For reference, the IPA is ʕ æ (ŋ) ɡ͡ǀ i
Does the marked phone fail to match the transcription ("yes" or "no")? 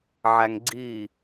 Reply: no